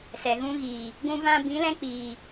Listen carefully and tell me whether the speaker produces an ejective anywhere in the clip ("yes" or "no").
no